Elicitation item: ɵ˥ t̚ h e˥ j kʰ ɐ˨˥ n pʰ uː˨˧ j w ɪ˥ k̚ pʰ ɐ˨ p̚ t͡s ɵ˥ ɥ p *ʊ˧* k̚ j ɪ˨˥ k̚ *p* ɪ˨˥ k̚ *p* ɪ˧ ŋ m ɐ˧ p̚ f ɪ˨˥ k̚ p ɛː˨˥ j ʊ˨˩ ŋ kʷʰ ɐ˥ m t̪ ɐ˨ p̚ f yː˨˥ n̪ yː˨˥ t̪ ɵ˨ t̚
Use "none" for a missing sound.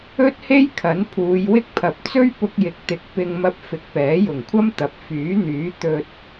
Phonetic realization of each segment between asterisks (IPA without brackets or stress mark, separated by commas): ʊ˧, t̪, p